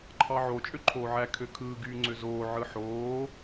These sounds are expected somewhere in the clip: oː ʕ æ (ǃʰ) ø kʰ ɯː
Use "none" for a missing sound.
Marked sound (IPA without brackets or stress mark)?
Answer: kʰ